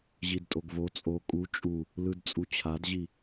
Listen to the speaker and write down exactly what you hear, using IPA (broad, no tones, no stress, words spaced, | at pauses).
ʑidtʼoɡvo t͡sʼo kʼu t͡ʃʼu | lɯdt͡sʼut͡ɕʰadʑi